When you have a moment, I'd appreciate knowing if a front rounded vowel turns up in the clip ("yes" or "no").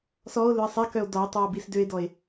yes